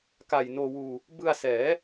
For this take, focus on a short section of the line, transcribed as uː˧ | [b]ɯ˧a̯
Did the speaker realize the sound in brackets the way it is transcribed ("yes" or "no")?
yes